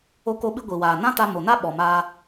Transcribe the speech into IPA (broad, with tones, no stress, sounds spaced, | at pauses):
o˧ k o˧ ɓ ɨ˧ ɡʷ i˨ w aː˨ n ã˦ t a˧ m o˨ n a˦ ɓ ɔ˨ m aː˧